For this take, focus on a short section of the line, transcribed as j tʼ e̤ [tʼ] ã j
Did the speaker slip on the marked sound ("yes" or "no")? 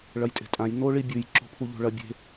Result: no